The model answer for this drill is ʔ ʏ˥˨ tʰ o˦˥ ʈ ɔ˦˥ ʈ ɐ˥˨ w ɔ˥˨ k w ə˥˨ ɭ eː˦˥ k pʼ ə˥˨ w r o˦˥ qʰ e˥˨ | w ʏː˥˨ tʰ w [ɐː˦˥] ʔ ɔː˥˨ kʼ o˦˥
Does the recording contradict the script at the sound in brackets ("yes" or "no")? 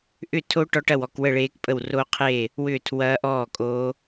no